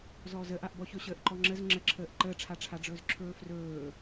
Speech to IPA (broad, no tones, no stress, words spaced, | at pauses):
zɔːzəʔaʔbɔ çɵɕəːʔǃɔŋ͡ǁəz ŋ͡ǁəǁʰəːʔ ǃəːʈ͡ʂʰaʈ͡ʂʰaɖ͡ʐɵːz ǁʰɵːfrɵː